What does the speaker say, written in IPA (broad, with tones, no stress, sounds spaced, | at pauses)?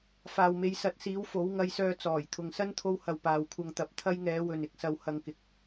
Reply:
f aː˨ w m e˨˧ j s ɐ˨˥ t̚ s iː˨˥ w f o˨˥ w ŋ ɐ˧ j s œː˧ t͡s ɔː˨˩ j t̪ʰ ʊ˨ ŋ s ɐ˥ n t̪ʰ o˧ w h ɐ˨ w p aː˨ w kʷʰ ɐ˧ ŋ t̪ ɐ˨˥ p̚ t̪ʰ ɐ˥ j ŋ ɛː˨˥ w ɵ˨ n ɪ˧ k̚ s ɐ˨ w h ɐ˨ ŋ k ɪ˨ k̚